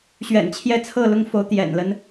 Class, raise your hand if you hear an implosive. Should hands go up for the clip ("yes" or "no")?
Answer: no